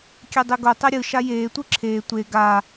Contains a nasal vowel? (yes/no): no